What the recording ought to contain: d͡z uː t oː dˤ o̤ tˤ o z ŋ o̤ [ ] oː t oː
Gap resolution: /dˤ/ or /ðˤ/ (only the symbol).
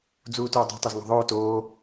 ðˤ